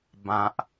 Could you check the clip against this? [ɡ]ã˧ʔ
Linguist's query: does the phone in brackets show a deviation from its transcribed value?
yes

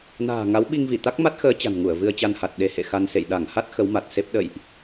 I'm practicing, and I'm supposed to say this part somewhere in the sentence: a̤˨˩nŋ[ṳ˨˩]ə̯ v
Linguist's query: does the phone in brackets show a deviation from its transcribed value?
yes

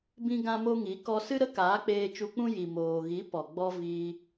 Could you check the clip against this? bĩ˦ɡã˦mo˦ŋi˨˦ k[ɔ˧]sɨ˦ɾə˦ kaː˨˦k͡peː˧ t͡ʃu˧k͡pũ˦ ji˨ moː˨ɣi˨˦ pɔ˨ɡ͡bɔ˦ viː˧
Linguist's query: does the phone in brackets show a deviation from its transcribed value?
no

